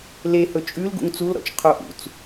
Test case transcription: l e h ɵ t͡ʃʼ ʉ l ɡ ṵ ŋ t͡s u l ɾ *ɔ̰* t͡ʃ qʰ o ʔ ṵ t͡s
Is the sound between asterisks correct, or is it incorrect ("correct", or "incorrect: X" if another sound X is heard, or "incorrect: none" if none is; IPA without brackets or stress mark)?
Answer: correct